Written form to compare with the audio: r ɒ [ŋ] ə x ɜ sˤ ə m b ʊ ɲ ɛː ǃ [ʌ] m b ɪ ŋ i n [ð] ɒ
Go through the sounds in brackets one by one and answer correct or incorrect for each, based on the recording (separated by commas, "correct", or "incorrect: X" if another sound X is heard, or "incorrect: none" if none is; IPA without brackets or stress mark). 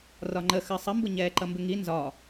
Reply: incorrect: ŋ͡ǃ, correct, incorrect: z